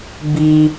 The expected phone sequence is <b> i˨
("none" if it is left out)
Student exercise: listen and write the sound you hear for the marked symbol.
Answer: b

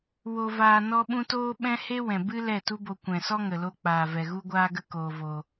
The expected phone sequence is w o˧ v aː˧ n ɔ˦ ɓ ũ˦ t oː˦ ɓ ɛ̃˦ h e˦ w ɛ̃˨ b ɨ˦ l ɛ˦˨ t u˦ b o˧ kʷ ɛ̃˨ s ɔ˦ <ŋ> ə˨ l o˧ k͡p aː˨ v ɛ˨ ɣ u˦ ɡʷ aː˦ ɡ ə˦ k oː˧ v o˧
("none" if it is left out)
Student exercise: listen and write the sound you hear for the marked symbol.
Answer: ŋ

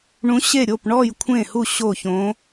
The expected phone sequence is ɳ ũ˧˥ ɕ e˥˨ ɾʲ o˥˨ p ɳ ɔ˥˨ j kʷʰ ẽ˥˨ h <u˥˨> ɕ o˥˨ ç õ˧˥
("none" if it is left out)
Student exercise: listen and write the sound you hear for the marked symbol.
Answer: u˥˨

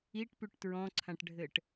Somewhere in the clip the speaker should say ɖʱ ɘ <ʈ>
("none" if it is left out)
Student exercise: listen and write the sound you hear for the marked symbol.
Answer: ʈ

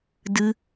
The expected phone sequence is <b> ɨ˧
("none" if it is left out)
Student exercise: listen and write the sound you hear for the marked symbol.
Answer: d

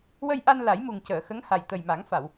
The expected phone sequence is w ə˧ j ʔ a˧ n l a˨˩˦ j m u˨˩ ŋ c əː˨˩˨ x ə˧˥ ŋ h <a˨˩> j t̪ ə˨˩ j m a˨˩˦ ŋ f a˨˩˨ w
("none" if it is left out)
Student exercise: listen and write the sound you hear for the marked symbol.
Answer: a˨˩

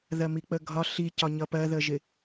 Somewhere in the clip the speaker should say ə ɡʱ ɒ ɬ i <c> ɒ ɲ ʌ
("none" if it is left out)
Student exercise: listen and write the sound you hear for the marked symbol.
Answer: c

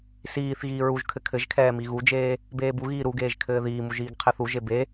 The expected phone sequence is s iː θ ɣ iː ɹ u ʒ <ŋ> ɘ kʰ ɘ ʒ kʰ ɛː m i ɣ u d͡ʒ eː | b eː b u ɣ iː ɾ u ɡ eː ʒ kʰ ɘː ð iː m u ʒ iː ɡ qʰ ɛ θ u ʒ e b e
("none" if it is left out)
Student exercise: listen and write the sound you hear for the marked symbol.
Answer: kʰ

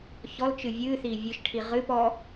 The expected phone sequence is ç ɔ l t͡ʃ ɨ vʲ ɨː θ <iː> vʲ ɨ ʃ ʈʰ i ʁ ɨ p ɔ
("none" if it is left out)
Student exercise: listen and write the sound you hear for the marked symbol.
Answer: iː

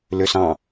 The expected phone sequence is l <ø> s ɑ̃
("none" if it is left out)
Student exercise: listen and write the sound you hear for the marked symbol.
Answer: ø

